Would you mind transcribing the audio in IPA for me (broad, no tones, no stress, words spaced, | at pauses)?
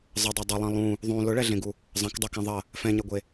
zˤɐdˤɛ dˤʊlˠɐ̃ lˠũ | ðˤũ lʊɭɛɮẽɡu | zˤɐ̃kdˤɛkɛ̃ ðˤɐ | fɛ̃ɲɛɡʷe